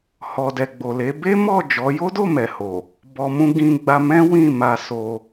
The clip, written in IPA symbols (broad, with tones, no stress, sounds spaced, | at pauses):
h ɔ˨ d ɛ˨ ɡ͡b o˨ l e˨˦ b e˦ m ɔ˦˨ d͡ʒ ɔ˨˦ j o˦ d o˦˨ m ɛ˨ h o˨ | b ɔ˧ m ũ˦ ɡ ĩ˧ ɡ͡b a˧ m ɛ̃˦ w ĩ˦˨ m a˧ s o˧